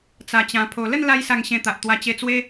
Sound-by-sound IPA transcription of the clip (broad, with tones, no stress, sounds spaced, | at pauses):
t͡s a˧ t͡ɕ ã˧ pʰ o˧ l ə˥˧ n l a˧ j s a˧ ŋ ɕ ẽ˧ t̪ a˨ ʔ t̪ w a˧ t͡ɕ e˧ t͡s w e˦